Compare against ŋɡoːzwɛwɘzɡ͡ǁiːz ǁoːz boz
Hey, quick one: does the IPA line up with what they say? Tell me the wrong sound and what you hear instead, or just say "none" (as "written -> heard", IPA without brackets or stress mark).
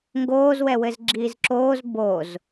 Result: none